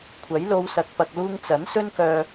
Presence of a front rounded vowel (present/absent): present